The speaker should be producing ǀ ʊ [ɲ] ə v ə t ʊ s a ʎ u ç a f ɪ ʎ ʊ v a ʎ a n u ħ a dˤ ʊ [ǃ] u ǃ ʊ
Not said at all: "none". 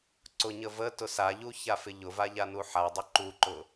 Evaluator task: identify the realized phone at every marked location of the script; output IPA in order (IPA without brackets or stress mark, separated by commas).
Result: ɲ, ǃ